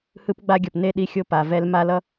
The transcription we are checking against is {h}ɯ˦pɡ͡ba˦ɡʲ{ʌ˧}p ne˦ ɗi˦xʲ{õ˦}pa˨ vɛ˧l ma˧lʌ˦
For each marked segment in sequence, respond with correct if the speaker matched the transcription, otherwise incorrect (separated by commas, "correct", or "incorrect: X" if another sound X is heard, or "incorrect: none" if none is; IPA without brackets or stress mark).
correct, incorrect: ʌ˨, incorrect: o˦